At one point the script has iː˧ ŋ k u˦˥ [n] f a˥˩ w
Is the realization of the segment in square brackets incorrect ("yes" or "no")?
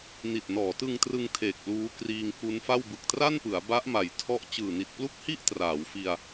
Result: no